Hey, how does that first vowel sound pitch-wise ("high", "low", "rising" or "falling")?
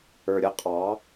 low